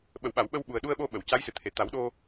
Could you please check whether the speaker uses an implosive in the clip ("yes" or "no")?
yes